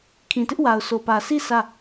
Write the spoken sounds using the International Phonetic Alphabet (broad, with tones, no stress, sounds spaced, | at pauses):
kʰ ĩ˨ t ɪ˦ ʔ w a˨ ʊ̯ s o˨ p ä˨ s i˦˨ sʰ ä˦˨